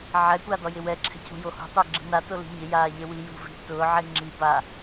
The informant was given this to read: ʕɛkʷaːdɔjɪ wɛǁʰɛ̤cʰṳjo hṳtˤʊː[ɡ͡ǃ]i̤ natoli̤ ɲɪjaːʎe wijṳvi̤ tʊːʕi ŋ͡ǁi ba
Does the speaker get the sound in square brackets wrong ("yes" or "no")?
yes